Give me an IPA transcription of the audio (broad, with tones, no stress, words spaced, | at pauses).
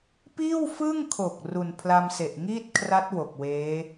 piː˥˩wfɯ˥˩ŋkʰo˨˩k̚ ru˨˩npʰla˧mse˨˩ʔ ŋiː˥˩t̚kʰra˦˥t̚ wo˨˩k̚weː˦˥